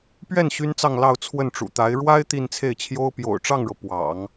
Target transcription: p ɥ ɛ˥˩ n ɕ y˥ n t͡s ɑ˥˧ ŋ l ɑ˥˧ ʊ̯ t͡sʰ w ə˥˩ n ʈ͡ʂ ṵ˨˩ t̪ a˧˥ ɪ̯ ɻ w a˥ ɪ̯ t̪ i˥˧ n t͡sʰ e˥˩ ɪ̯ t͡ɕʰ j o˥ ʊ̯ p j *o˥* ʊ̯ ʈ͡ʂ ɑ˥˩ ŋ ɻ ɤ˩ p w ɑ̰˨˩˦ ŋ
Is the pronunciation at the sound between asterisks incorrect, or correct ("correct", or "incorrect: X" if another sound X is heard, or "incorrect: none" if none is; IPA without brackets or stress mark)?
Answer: incorrect: o̰˨˩